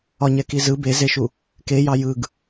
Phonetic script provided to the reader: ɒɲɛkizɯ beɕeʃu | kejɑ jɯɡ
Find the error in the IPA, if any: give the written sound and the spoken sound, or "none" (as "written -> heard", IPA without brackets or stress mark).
ɕ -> z